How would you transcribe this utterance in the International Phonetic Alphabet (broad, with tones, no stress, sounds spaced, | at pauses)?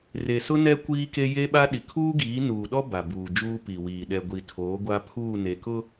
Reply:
r e˨ s ʊ˦ n ɛ˦ kʷ iː˦ k e˦ j e˦ ɓ a˦ ɗ i˨ kʰ uː˦ ɡ iː˨˦ n uː˨ ɗ ɔ˦ b a˨ b uː˨ d͡ʒ uː˦ p i˨ w iː˨ ɗ ɛ˨ ɡʷ i˨ tʰ oː˨˦ ɡʷ a˦ pʰ uː˦˨ n e˨ k ʊ˦